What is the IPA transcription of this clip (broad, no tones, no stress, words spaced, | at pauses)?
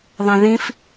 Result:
ðˤẽðĩf